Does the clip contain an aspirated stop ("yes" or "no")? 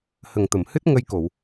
no